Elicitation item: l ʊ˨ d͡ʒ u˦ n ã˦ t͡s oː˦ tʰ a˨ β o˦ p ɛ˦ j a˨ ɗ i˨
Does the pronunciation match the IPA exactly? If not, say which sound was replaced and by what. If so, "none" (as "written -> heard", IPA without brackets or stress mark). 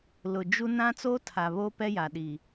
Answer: none